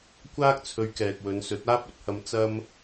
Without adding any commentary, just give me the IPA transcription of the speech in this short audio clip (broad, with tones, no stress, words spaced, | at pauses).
kʷaː˥k̚t͡sʰɵ˧ɥ kɛː˨k̚wɵ˨˧nsɵ˨˥t̚ aː˥p̚ɵ˨˥t̚hɐ˧m t͡sɐ˥m